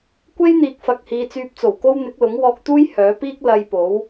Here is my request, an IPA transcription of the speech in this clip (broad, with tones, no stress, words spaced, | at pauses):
kʷe˥jn̪iː˨k̚fɐ˨k̚hiː˨ t͡syː˧p̚t͡so˨˩wko˥w n̪ɪ˨˥k̚lʊ˨˥ŋwɔː˧k̚t̪uː˥j hœː˨˥piː˥k̚ lɐ˧jpo˨˥w